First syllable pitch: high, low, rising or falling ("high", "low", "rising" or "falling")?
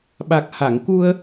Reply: low